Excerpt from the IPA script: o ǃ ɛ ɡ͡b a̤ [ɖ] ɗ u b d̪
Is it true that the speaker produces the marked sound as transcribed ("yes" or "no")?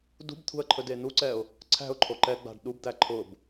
yes